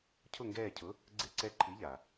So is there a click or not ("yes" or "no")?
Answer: yes